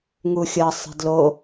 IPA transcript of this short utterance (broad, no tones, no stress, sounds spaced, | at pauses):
ŋ u xʲ ʌ sˤ ɛ̤ d l o